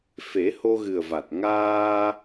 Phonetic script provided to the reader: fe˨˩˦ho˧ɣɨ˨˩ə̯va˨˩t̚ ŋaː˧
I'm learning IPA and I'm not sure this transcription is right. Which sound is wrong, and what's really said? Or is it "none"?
none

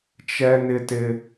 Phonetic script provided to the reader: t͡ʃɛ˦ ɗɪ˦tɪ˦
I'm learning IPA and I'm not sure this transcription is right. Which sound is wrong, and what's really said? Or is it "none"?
ɗ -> n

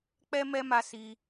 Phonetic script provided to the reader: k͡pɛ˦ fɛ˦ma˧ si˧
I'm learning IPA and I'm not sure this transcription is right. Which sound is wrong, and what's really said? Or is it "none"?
f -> m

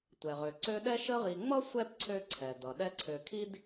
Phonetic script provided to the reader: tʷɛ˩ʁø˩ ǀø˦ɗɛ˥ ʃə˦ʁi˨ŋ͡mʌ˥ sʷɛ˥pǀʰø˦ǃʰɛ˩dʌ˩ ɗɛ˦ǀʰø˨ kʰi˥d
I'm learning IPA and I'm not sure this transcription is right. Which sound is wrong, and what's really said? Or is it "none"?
ǃʰ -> ǀʰ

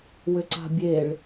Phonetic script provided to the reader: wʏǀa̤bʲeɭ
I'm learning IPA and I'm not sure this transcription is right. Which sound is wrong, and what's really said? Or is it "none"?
none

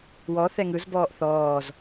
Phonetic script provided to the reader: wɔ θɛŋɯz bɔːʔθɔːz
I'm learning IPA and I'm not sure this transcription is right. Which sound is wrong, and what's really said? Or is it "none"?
none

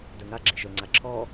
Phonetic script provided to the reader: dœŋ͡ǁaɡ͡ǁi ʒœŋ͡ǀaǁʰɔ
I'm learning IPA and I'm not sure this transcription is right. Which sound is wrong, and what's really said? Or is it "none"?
ŋ͡ǁ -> ŋ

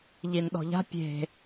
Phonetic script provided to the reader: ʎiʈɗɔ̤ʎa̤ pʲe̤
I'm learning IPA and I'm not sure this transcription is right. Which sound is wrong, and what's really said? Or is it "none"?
ʈ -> n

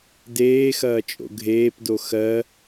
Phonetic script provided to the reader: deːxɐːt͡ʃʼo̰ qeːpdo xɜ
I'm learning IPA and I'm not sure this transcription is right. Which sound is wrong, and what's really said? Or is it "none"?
q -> ɡʱ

